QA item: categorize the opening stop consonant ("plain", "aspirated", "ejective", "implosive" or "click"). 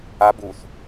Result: plain